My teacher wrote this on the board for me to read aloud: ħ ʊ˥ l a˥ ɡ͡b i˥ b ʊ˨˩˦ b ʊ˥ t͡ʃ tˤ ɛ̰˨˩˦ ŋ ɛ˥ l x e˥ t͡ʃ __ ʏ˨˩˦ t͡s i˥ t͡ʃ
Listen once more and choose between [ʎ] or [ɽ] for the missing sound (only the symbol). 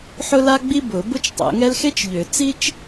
ʎ